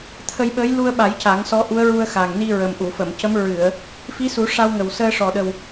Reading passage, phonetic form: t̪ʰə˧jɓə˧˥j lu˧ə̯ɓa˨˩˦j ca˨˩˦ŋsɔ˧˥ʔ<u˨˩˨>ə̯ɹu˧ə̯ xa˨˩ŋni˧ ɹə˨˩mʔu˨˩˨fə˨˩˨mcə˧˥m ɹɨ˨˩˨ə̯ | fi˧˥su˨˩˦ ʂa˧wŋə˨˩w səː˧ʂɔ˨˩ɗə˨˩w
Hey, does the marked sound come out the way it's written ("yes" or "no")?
no